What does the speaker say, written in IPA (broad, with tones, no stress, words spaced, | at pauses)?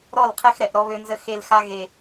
ɾɔ˦˨lqʰɛ˦xɾɛ˨ʔ ɾɔ˦βø˦nzə˦ xe˦lxa˦ ɣe˨